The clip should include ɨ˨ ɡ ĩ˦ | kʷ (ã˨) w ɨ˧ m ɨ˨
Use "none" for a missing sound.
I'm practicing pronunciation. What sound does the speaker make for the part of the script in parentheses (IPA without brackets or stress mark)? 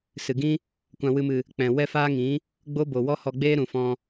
ã˧